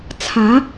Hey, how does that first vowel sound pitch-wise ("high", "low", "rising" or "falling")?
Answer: rising